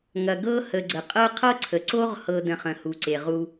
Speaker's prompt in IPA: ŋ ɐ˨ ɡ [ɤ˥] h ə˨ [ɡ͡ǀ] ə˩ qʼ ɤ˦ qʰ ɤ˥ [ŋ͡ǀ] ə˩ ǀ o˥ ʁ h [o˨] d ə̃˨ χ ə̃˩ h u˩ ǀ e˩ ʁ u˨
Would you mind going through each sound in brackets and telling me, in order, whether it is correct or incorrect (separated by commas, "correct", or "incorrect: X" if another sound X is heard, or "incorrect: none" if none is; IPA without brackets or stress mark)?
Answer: correct, correct, incorrect: ǀʰ, incorrect: ɤ˨